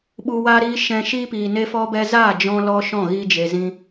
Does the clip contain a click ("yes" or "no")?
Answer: no